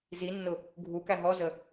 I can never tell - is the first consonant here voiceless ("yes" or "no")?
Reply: no